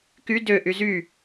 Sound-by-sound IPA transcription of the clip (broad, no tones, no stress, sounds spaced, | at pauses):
k y d ø ʔ y z y